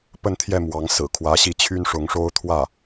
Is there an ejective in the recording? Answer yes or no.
no